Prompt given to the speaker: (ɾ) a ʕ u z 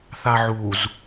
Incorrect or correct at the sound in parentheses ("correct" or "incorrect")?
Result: incorrect